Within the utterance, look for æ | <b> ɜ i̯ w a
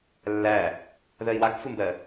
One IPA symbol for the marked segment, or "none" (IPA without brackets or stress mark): ð